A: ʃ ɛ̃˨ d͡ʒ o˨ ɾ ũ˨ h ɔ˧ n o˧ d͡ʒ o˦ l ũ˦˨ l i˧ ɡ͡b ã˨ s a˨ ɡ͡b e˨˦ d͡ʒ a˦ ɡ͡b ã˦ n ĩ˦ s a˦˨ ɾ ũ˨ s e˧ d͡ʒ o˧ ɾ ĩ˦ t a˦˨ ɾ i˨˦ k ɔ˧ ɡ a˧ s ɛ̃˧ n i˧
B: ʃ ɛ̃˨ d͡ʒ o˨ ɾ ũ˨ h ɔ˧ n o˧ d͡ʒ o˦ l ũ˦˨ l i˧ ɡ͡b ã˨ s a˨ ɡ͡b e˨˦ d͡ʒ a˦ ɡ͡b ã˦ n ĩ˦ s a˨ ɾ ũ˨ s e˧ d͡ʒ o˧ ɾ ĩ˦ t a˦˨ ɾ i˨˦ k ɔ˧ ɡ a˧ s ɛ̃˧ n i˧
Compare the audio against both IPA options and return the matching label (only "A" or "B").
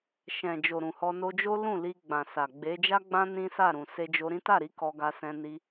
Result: A